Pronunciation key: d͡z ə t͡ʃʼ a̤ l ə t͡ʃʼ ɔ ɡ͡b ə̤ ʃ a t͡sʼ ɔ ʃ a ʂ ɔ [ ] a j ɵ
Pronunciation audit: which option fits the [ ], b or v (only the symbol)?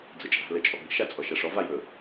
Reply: v